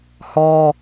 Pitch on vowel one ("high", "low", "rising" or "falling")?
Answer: high